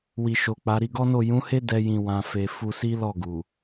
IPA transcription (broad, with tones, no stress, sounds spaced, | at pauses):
w i˨ ʃ o˨ k͡p a˨˦ ɾ i˧ ɡ ɔ˦ n o˦˨ j ũ˨˦ h e˦ d ɛ˦ j ĩ˧ w ã˧ f e˧ f u˧ s i˦ l ɔ˦˨ ɡ u˨